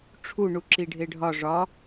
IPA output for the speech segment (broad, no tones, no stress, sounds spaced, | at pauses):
ʈ͡ʂʰ u ɳ u ǁ i ɖʱ e ɖʱ ɒ ʐ ɒ